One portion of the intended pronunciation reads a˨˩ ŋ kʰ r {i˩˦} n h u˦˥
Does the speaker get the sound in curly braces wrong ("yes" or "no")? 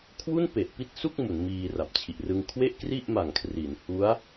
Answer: no